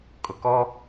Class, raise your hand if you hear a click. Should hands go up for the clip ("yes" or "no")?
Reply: no